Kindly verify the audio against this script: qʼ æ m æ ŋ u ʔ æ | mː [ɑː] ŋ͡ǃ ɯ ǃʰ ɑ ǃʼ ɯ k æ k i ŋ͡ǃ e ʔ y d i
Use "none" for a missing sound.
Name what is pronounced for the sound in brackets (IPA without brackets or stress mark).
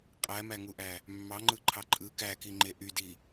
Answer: ɑ